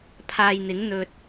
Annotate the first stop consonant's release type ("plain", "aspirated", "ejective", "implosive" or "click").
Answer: aspirated